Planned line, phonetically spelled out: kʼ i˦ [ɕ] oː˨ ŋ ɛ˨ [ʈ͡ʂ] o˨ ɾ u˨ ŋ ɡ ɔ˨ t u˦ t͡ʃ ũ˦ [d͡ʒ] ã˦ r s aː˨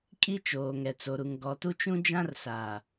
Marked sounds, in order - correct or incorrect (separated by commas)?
incorrect, incorrect, correct